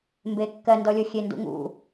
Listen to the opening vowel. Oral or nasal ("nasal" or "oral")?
oral